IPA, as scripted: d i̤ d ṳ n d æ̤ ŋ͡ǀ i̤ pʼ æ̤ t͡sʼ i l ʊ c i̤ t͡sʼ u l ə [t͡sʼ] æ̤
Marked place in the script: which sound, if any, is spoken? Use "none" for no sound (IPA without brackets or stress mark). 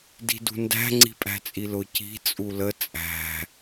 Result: t͡sʼ